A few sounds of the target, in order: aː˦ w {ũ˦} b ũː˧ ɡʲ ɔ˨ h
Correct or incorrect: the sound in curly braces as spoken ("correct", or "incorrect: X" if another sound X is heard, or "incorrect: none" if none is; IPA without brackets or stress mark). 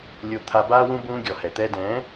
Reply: correct